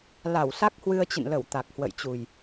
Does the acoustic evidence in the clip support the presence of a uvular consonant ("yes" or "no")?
no